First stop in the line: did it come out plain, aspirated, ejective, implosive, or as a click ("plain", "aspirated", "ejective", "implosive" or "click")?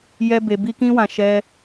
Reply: plain